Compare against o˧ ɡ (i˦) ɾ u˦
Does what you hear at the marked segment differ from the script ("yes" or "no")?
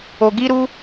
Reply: no